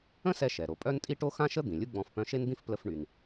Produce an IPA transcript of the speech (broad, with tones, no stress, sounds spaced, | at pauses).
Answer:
ə̃˥ s ɛ˧ ʃ ɛ˩ ɾ o˩ pʼ œ˥ n tʼ i˥ ʈ o˥ x ã˥ ʃ ə˥ d̪ ĩ˩ lʲ u˥ ɡ͡b ɔ̃˧ f p œ̃˧ ʃ e˥ n d̪ ĩ˥ f p l ə˧ f ɳ y˩ n